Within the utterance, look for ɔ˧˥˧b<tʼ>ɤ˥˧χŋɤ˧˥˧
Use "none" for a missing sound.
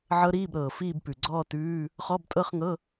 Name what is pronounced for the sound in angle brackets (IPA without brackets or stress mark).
tʼ